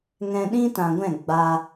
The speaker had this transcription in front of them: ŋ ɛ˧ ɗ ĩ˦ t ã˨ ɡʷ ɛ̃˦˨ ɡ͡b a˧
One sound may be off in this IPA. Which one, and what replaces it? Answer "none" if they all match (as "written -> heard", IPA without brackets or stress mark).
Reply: ɛ˧ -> ɛ̃˧